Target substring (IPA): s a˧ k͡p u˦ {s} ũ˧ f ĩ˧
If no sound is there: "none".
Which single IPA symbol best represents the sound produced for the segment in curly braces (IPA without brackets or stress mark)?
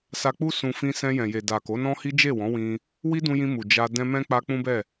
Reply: s